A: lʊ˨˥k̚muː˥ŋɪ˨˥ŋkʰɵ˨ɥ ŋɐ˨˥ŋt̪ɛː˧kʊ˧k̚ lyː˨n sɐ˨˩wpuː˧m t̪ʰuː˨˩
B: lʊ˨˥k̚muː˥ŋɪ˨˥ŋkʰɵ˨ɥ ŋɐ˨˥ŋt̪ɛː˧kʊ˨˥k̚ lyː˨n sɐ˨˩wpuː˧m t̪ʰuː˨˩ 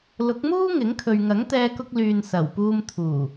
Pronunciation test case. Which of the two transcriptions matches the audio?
A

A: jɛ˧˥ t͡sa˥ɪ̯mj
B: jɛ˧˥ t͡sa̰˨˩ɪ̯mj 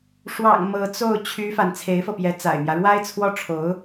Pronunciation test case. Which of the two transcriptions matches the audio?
B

